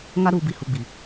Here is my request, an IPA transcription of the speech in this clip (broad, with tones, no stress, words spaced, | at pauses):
ŋa˦ ɾuː˨bi˨ hu˨ɡ͡bi˨